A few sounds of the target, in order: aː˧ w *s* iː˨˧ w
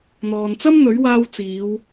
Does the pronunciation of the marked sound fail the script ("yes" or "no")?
yes